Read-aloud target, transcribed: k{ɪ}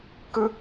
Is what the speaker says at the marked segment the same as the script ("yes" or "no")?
no